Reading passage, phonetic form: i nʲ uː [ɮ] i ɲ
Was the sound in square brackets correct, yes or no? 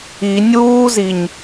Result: no